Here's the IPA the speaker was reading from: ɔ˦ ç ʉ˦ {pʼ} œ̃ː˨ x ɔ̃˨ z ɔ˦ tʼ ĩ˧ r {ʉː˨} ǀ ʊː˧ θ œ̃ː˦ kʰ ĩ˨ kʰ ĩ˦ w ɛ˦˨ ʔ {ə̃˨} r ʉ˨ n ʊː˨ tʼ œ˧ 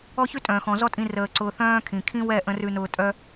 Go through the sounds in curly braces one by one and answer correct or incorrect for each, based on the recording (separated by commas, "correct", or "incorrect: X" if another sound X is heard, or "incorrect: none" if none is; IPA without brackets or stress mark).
incorrect: tʼ, incorrect: əː˨, correct